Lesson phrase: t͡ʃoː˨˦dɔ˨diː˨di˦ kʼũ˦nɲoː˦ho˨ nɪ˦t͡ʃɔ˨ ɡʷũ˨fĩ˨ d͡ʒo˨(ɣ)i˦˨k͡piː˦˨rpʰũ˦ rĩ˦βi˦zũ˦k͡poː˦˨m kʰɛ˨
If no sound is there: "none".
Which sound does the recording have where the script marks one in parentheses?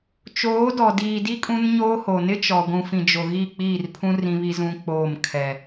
ɣ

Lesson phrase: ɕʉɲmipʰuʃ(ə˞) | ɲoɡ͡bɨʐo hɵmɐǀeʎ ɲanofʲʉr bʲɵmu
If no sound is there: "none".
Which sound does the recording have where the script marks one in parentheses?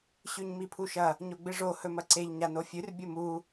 ɐ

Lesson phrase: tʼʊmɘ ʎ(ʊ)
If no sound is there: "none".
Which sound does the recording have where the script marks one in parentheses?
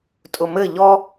ɔ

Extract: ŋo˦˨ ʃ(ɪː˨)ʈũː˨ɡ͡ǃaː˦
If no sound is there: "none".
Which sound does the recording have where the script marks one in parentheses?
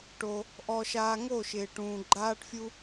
ɪː˨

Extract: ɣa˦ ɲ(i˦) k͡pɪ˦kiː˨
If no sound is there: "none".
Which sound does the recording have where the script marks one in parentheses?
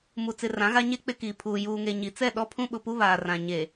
e˦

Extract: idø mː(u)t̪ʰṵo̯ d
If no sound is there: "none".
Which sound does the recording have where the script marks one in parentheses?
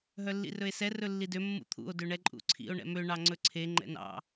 ṵ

